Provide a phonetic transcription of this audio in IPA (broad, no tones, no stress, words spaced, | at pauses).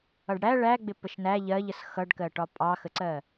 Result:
ʌɖɽæ ɭæɡ͡bɪ pəʃnæ ʎɜʎəs xʌɖkɜ ʈɒpʼɑxəǀɜ